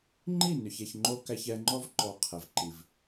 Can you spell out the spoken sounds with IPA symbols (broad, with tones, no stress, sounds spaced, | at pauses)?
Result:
ŋ͡ǃ i˦˨ n ʏ˨ ç ɛ˨ ç ŋ͡ǃ o˦ k æ˦ ç ɛ˦ ŋ͡ǃ ɔ˦ v ǃ ɔ˨ qʰ ɛ˨ v ǃ i˨ v